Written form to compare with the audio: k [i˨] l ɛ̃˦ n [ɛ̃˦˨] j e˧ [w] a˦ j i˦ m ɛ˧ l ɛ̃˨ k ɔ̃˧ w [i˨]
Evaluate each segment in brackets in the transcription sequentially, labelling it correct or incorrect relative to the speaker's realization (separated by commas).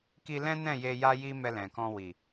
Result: incorrect, correct, incorrect, correct